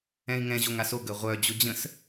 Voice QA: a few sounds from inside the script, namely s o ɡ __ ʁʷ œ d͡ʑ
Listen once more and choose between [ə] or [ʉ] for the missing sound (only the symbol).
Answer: ə